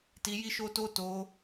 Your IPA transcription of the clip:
t i˧ j i˦ ʃ o˦ t o˦ t o˧

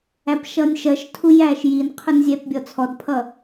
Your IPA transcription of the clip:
æ p ʃ ʌ nʲ ʃ ɜ ʃ tʰ u j æː ʃ j i n qʰ ʊ n zʲ ɛ p bʲ ɔ t͡sʰ ɔ d pʰ ʌ

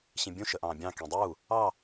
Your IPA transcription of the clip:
ɕ ĩ bʲ ũ ʃ ə ʔ ɑ̃ː bʲ ɑ̃ k ĩ dˤ uː | ɑ

